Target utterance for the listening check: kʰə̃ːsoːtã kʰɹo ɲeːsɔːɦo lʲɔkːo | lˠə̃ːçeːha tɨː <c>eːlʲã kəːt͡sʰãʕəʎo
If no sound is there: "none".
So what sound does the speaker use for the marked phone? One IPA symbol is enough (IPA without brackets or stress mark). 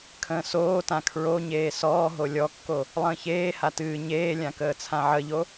ɲ